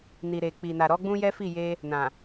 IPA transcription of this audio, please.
n i˨ ɾ e˨ k͡p i˨ n a˨ ɾ ɔ˨˦ ɡ͡b ũ˦ j ɛ˦ f i˦˨ j e˧ | n ã˨

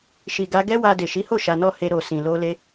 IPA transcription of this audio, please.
ʃ i˨ ɡ a˧ ɡ ɛ˦ w a˧ d e˨ ʃ i˨˦ h o˦˨ ʃ a˧ n ɔ˦ h e˧ ɾ o˨ s ĩ˨ l o˧ l e˧

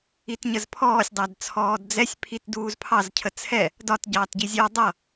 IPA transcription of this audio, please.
i t ɲ ə z pʰ ɔː sʲ dˤ æ d t͡sʰ ɔː d d͡z ɛ sʲ pʰ i t d uː z pʰ ɑ z cʰ ə t͡sʰ ɛ | d ɒ t ɟ ɑː t ɟ i zʲ ɔ dˤ ʌ

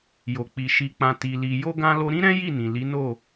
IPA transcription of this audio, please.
j o˨ k͡p i˨ ʃ i˨ k͡p ã˨ t i˨ l i˨ j o˧ ɡ ã˧ l o˧ ɾ ĩ˦ ɾ ɛ̃˦ j i˦˨ n ĩ˨ l i˨˦ n o˦˨

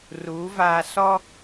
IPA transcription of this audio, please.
r uː˨˦ v aː˨ s ɔ˦

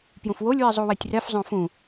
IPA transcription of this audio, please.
p j ũ f w o lʲ w i zˤ u w ɛ tʲ r ɛ f zˤ õ f ũ

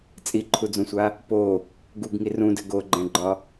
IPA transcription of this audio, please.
t͡sʼ i ǃʰ u d͡z ũ sʷ a | p o | ɡ u ɡ ŋ i r ũ d ɘ ɡ o ɡ͡ǃ ɛ̃ ɡ͡ǃ ɒ

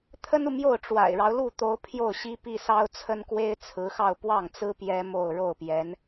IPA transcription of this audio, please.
t̪ʰ ə˥ n u˨ m j o˥˩ ʊ̯ ʈ͡ʂ w a̰˨˩ ɪ̯ ɻ ɑ˦ ʊ̯ l u˥˩ t̪ o˧˥ ʊ̯ pʰ j o˥˩ ʊ̯ ɕ i˥ p i˥˩ s ɑ˥ ʊ̯ t͡sʰ ə˥ n k w e˥ ɪ̯ t͡sʰ ɹ̩˧˥ x ɑ˥˧ ʊ̯ p w ɑ˥˩ ŋ t͡s ɹ̩˥ p j ɛ˥ m o˥˧ ʊ̯ ɻ o˥˩ ʊ̯ p j ɛ˧˥ n

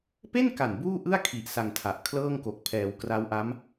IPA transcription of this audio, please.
p e˥˩ n k a˨˩ n b uː˥˩ ʔ ɯ˥˩ a̯ kʰ i˨˩ ʔ s a˧ ŋ tʰ a˨˩ ʔ kʰ l ɤː˥˩ ŋ k o˨˩ k̚ pʰ ɛː˩˦ w k r a˦˥ w ʔ a˦˥ m

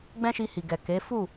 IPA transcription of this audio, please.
ɡ͡b ɛ̃˦ ʃ i˧ h i˨ ɡ ɛ˨ k e˨˦ f u˦˨

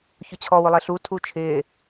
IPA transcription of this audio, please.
ç ʊ t͡ɕʰ ɔ w ʊ lˠ e ɬ u tʰ u t͡ʃʰ ɪː

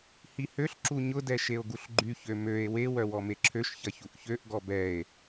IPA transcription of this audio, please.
h i h ø ɬ ǁ u ɲ ʊ d ɛ ʃ e o̯ ɡ u ɬ ɡ͡ǃ y ç ø m ø e̯ w e w œ w ɔ m e ǁʰ ø ʃ ç ɐ ç u ʔ ç ø ʔ ɡ ɔ b ɛ e̯

